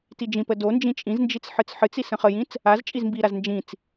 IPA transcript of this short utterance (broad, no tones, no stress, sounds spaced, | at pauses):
t i d͡ʒ ĩ p ə d o n d͡ʒ ĩ t͡ʃʼ ĩ z n d͡ʒ i t͡s ħ ɨ t͡s ħ ɨ t͡s i s ə̃ χ ə j ĩ t͡s | a z t͡ʃʼ i z m b i ɾ a z n d͡ʒ ĩ t͡s